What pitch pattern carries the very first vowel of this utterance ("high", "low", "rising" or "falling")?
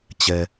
low